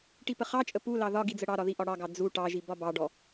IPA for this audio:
ʈipəχɑt͡ʃʼə pulɑ ðɒ ɡid͡zəɽɑɾɒ ðiʔɒɽɑɡɑ d͡zu ʈɑʒi bɒbɑɖɔ

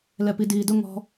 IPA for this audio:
lɛpidiːdʊ ŋɔ̤

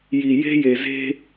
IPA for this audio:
ji˨ je̤˦je˨ ze̤˦

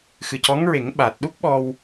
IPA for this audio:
xɨ˨˩cɔ˧˥ŋɹe˨˩˦ŋ ɓa˨˩t̚ ɗu˦˥k̚ ɓɔ˧w

